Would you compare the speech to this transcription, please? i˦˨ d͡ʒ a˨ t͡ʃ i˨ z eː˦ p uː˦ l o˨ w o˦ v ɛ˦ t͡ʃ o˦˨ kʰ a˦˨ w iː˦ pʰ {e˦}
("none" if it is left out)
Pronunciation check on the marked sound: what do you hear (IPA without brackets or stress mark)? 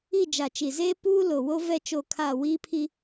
i˦